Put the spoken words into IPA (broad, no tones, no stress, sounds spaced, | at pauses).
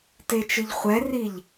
t e t͡ʃ ɨ ʎ χʷ ɛ r i ʎ